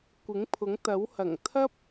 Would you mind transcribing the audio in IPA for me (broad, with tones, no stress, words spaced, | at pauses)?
kʷɪ˨˥ŋpʰʊ˨˥ŋt̪ɐ˨˥w hɐ˨˩ŋt̪ʰɐ˥p̚